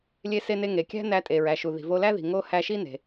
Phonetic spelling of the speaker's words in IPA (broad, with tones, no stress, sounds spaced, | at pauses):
lʲ e˧ s e˧ n e˧ ŋ e˩ kʲ æ̤˥ n æ˧ tʼ e˩ ɹ æ˩ ʃ u˩ ð i̤˩ v o˧ l æ˥ ð i̤˩ ŋ o˥ h æ˧ ʃ i˥ n e̤˩